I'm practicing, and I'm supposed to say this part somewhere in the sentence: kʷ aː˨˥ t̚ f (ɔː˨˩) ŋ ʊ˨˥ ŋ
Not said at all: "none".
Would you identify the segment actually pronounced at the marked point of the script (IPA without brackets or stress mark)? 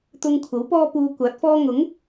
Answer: ɔː˥